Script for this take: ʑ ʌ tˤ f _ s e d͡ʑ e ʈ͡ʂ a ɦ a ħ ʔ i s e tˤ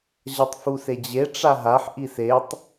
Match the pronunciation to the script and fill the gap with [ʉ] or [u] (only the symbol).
u